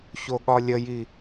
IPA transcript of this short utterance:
çoɠɒlʲəji

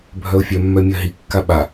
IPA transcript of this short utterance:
bʱœʊ̯fʲœ mːœmʲɜɦi kːaɓa

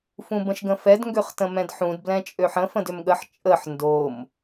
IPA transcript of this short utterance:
fũbə̃ʃɡə̃fɛd ŋɡøχtə̃mɛ̃dħũd blɛ̃t͡ʃʼøħə̃ fə̃dʏmɠəħ t͡ʃʼəħ ndom

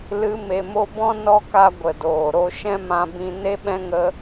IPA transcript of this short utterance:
lɨ˨˦me˨mo˧bɔ̃˦ nɔ˧ka˧ɡʷə˨ doː˨ɾo˧ ʃɛ̃˦mã˧bĩ˧ ne˦ɓɛ̃˦ŋə˦

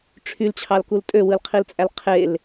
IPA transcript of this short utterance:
ʈ͡ʂʰylt͡ɕʰɑlkul tʼøwɯlqʰilt͡sʼæl qʰel

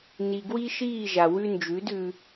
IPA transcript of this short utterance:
ni˨ɡwi˦ʃiː˦˨ ʒa˨wʉ˦ nd͡ʒʉ˨˦dʉ˧

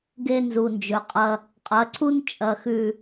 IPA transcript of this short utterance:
ɡe˦nzu˨nd͡ʒɵ˨qʼɐ˦ | qʼɐ˨˦ǀu˦n t͡ʃʼɐ˨xʉ˨

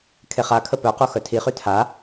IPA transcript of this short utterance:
kʰeχakʰə pœqo xœtʰiχy tʰa

